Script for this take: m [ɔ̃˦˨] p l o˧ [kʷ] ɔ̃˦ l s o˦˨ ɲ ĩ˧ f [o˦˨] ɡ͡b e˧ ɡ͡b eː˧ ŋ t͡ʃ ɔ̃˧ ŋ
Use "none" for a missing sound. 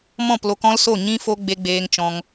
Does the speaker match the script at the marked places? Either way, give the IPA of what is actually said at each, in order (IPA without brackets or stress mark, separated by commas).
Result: ɔ̃˦˨, k, o˧